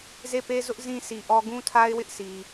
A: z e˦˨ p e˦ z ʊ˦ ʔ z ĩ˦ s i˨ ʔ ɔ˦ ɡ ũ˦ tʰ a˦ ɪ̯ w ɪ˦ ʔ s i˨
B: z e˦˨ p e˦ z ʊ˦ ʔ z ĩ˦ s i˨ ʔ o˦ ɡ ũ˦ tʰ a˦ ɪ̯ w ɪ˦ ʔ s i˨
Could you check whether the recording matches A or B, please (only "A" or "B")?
A